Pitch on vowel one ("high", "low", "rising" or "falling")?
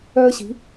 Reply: high